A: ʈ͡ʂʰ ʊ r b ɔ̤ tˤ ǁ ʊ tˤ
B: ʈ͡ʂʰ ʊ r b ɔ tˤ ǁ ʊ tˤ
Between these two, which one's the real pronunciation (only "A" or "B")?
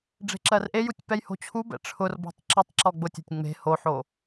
A